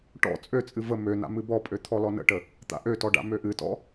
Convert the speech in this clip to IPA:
ʈɔ̰ t͡sʼøt͡sʼɨ və møna̰ mɨbɔpʼø t̪ʰɔlɔnə̰ʈə | t̪a̰ʔøtɔ ɖa̰møʔɨtɔ̰

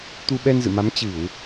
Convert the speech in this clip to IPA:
t̪u˧ɓɛ˧nzɨ̰˧˨ma˨˦m t͡ɕɨ˧˩˨w

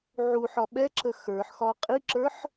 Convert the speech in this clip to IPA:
ʕuħɒ ɓɛǁə xə˞ħxɒ qʼiǁə˞ħ

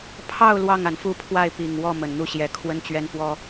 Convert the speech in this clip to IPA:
pʰɑ˥˧ʊ̯ lwɑ˥˩ŋa˩nfu˥˧pʰwa˥˩ɪ̯ pi˨˩ŋ wɔ˥˩ mə˨˩nn̪u˥˩ ɕjɛ˧˥ kʰwə˥nt͡ɕɥɛ˥nfwɔ˥

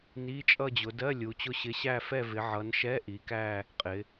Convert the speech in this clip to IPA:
ni˧˥˧t͡ʃʼʌ˥˧d͡ʑʊ˨˦ dɜ˧˥˧ lʲu˨˦t͡ɕʊ˥˧ɕɪ˧˥˧ ɕæ˥˧fɛ˥˧vɪ˨˦ ʕʌ˨˦nʃɛ˧˥˧ ʔi˨˦kæ˥˧ | qʼɪ˨˦

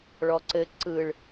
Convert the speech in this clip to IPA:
ɭɔǀɘ ǀɯɭ

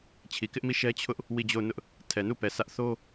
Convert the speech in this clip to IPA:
t͡ɕʰi˨kɪ˦ʔmi˦˨ ʃɛ˦t͡ɕʰʊ˦ʔ | wi˦˨d͡ʑo˦˨ʊ̯nʊ˦ʔ | tʰɛ˨nu˦˨pɛ˨ sä˦ʔ θo˦

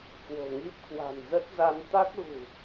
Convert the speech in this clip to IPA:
kwo̤˨˩ŋi˦˥p̚ kwa̤˨˩nzə˦˥t̚za˧n t̪a˦˥k̚ɣṳ˨˩

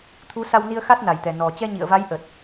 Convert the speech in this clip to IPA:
t̪ʰu˨˦sa˧wni˧ə̯ xa˦˥t̚na˨˩jt̪ɛ˨˩ nɔ˨˩ t͡ɕɛ˧ɲḭ˧˨ə̯va˨˦j ʔə˨˩t̚

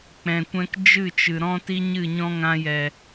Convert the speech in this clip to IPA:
k͡pɛ̃˨kʷɛ̃˧k d͡ʒɨ˦˨t͡ʃɨ˨ ɾɔ̃˧ti˧ ɲɨ˦˨ɲɔ̃˦ŋã˧jɛ˨

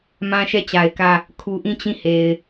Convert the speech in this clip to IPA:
mã˦ʃɛ˦˨t͡ɕa˨ɪ̯kä˦˨ | kʰu˨ʔĩ˦˨ t͡ɕĩ˦˨he˨ɪ̯

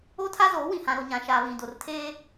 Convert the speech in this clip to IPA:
o˦tʰa˦zoː˨˦ wĩ˨hã˨ɾo˨ ɲã˨ʃaː˨ βĩ˨do˨rtʰeː˦

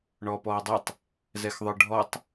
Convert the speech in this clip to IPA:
ɳɔːpɔːdˤɛtˤ | zɛxðˤə˞ɖʱɔtˤ

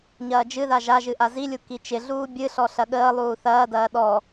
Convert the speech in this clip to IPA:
ɲɐːd͡ʒɨða ʒaʒɨ ʔazilʲu kit͡ʃɪɮuː bʲɨɬɔ ɬɐɠəːlˠuː θɐːdɐː ɗɔ

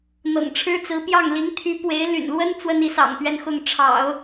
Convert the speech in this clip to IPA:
n̪ɤ̰˨˩ŋʈ͡ʂʰɻ̩˥t͡sɹ̩˧˥pjɑ˥˩ŋ li˧˥ŋt̪ʰy˧˥ pwe˧˥ɪ̯ ly̰˨˩nlwə˥n t͡swə˥ni˧˥ sɑ̰˨˩ŋpɥɛ˥˧nxʊ˥˩ŋ ʈ͡ʂʰɑ̰˨˩˦ʊ̯

